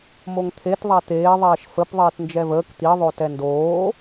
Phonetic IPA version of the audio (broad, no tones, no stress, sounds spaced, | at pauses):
m o ŋ t̪ʰ e t ðˤ æ t̪ eː ðˤ ɛː ʃ f ə p ðˤ eː t n d͡ʒ ɛ v əː k t̪ i ðˤ o t ɛ n d oː